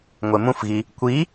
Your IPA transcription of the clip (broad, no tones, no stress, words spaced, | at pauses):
ŋʷemũfɣi | kʷi